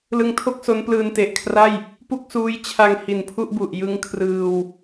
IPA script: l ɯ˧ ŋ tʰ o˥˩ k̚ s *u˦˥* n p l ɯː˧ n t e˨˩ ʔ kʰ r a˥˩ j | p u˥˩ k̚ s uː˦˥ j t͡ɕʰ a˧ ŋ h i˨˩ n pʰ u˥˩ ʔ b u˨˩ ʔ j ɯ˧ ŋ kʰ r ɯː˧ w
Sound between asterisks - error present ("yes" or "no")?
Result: yes